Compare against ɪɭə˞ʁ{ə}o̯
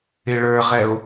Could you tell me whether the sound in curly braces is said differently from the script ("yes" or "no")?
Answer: yes